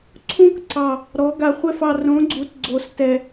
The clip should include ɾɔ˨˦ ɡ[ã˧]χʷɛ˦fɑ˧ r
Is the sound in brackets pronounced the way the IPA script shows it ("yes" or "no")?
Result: no